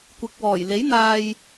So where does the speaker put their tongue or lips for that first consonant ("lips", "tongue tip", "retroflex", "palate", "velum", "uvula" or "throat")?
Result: velum